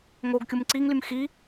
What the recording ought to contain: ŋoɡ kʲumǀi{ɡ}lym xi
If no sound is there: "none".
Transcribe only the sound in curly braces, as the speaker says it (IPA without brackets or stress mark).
ŋ